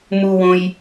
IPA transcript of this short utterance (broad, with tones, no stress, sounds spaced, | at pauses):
m u˩ w õ˩ j